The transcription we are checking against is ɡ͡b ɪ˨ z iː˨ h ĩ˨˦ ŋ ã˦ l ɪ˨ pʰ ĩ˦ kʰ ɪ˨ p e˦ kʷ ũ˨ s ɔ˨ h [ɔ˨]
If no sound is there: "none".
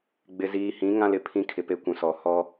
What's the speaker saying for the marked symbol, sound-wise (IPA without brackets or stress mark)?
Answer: ɔ˦